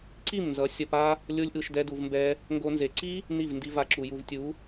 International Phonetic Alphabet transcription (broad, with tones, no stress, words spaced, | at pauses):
ǀi˦˨mnzʌ˨˦ sʲʌ˧pa˦ | lʲo˦lʲʔɯ˧ʃ dɛ˧du˨vmbɛ˧ | ŋɡo˧nze˨ ǀi˦ | ni˦˨vndi˧va˧ǁu˨ ju˨vtʲu˨˦